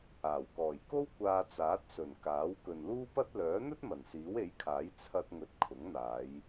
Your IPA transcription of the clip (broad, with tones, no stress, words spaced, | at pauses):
aː˨˩wkɔː˨˩jko˥w kʷaː˧t͡saː˨˥t̚sɵ˨˩n kaː˨˥w kɵ˨nluː˥ pɐ˥t̚ lœː˨˥n̪ɵ˥t̚ mɐ˨˩nsiː˨˥we˨˥jkʰaː˨˥j t͡sʰɐ˧t̚ŋɵ˨t̚ kʰʊ˨˥ŋn̪aː˨˧j